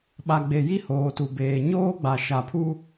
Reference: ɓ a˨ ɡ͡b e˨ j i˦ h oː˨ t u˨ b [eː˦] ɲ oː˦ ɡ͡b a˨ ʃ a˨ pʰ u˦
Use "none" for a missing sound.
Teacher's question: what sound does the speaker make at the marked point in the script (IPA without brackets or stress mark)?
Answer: eː˨